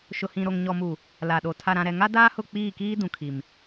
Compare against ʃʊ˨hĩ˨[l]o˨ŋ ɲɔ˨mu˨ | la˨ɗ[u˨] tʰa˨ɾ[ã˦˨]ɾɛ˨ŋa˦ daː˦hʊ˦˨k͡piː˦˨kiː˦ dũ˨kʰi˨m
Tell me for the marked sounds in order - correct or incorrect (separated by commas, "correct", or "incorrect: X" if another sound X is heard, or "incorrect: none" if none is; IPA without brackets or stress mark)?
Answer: incorrect: ɾ, incorrect: o˨, incorrect: ã˨